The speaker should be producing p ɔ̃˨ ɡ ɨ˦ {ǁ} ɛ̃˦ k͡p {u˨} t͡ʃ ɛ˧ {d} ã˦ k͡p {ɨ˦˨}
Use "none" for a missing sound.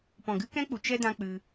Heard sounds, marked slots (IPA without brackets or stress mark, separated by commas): k, u˨, d, ɨ˧